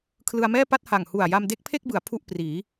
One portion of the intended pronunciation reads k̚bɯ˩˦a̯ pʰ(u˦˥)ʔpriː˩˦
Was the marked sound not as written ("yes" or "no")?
yes